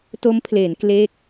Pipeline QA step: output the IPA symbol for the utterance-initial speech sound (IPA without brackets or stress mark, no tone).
t